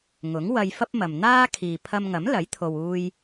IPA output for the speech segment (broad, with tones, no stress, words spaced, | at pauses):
ŋʊ˨˥ŋwɐ˧jfɐ˥p̚mɐ˨m n̪aː˥ kʰiː˨pʰɐ˧mŋɐ˨˥mlɐ˨˥j t̪ʰo˨wuː˧j